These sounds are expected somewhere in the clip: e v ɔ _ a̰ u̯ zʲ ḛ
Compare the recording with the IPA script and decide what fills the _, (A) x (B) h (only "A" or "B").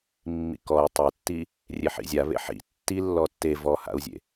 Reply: B